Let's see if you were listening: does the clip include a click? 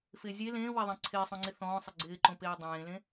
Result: yes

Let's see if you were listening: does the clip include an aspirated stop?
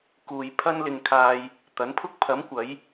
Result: yes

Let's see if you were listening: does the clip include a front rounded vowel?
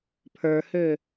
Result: yes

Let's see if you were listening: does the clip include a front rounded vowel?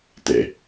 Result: no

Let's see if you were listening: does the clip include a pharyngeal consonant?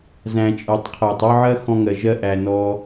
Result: yes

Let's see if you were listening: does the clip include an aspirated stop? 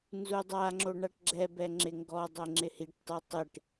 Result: no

